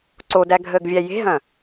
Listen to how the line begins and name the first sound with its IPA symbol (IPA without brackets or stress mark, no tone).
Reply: ǀ